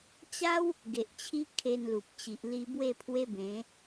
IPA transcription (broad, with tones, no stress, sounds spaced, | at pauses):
t͡ɕ a˦ w | ɡ e˨ ʔ t͡ɕʰ i˦ kʰ e˧ n l u˨ p̚ t͡ɕ i˨ ʔ l i˧ b w e˥˧ pʰ w e˦ b ẽ˨˦